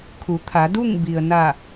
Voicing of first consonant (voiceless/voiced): voiceless